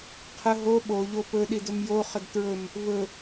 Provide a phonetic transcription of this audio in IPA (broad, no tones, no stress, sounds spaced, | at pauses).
qʰ ə ɦ o ɓ o ʎ o p ɵ ɗ i d ɵ m j o χ ə d t ɹ ɵ m | v ɵ